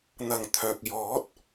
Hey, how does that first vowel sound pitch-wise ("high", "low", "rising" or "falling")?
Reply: low